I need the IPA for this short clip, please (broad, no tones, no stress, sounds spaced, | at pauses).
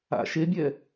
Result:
a̰ ʃ e bʲ ɛ